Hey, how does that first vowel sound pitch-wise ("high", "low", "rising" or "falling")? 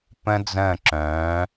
high